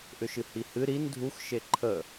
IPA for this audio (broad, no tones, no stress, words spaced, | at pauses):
ʔʏʃɨhihɨ ɾin dʱux ʃeǃʰə